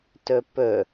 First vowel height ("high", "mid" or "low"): mid